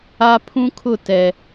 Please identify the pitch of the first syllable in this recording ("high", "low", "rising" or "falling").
high